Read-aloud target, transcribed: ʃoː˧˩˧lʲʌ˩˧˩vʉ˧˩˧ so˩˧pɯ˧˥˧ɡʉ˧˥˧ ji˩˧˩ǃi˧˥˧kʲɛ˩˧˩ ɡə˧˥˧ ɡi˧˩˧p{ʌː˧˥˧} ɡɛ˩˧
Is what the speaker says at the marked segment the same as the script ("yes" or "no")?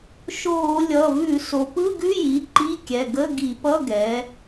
no